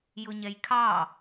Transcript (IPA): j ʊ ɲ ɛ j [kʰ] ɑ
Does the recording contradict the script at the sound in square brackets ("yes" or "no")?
no